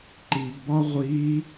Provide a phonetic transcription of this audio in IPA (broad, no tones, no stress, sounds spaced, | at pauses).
ǃ i ɡ b ɒ ʁʷ i